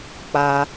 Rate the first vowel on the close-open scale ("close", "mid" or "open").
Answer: open